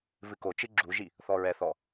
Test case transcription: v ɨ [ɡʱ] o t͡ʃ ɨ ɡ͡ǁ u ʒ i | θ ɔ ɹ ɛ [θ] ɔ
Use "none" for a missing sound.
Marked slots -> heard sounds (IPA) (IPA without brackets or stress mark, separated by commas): k, θ